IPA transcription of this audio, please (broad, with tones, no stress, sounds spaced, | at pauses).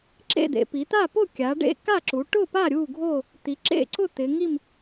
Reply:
ǁ ḛ˥˨ d̪ ḛ˩˧ p i˩˧ t̪ a˥˨ p ʊ˥˨ kʲ a˩˧ ɖ ḛ˥˨ k a˥˨ ǁ u˩˧ ʈ ʊ˥˨ p a˥˨ ɾʲ u˥˨ ɡʱ o˥˨ | t̪ i˩˧ ǁ ḛ˥˨ ǀ ʊ˥˨ t̪ ɪ˩˧ ŋ i˥˨ m